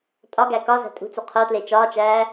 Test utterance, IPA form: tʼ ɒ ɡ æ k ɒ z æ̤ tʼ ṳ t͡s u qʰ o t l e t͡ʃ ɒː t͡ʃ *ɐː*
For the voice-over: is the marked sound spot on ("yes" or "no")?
no